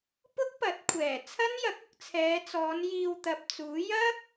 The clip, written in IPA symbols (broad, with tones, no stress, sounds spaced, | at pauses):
p ʊ˥ k̚ p ɐ˨˥ t̚ kʷʰ ɛː˨˩ t͡sʰ ɐ˥ n j ɐ˨˥ k̚ ʊ˧ k̚ t͡sʰ ɛː˨˧ t͡s ɔː˨˧ n j iː˧ w t̪ ɐ˨ p̚ t͡s uː˨˥ j ɐ˥ k̚